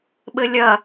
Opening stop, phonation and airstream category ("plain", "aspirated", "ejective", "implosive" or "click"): implosive